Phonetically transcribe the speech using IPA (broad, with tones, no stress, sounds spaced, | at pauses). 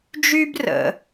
d͡ʒ y˥ b r ə̰˩